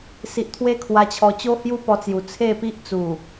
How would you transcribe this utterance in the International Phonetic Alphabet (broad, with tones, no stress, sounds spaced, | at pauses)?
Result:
s i˨ ʔ t̪ʰ w e˦ kʰ w a˧ t͡ɕʰ ɔ˧ t͡ɕ o˦ h j u˦ p ɔ˧ t͡s j u˨˩ t͡sʰ e˥˧ p i˦ ʔ t͡s u˨˩